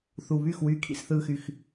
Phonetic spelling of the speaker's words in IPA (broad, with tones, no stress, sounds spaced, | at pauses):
θ u˨ β y˦˨ x w yː˦ kʰ ḭ˦ s θ ɯː˦ x y˦ x